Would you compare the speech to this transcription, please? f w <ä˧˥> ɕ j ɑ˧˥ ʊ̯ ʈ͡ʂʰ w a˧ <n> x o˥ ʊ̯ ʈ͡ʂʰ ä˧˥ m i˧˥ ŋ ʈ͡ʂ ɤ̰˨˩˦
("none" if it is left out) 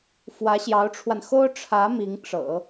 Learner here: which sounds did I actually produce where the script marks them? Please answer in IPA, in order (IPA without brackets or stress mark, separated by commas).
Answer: ä˧˥, n